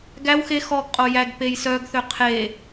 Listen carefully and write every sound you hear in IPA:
ɡ æ w x e x ɔ ɡ qʼ o j æ ɡ p e j s œ ɡ θ ø qʰ e

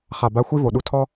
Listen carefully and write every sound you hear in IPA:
χ a˨˩ b a˧˥ xʷ i˥ v o˨˩ ɗ u˧˥ tʰ ɔ˥

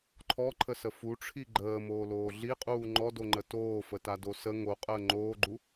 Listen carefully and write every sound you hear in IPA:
ǃʰ ɔ ǃʰ ə s ə f u ʈ͡ʂʰ i ɡ͡ǃ əː m oː l oː ɮ i qʼ uː ŋ͡ǃ ɔ d o ŋ͡ǃ ə t oː f ə t a d o s ə ŋ o qʼ əː ŋ͡ǃ oː ɡ͡ǃ u

